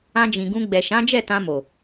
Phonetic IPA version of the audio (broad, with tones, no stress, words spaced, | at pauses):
ã˧d͡ʒĩ˨ɡũ˧ ɡ͡bɛ˨ʃã˨˦d͡ʒɛ˦˨tã˧ mo˨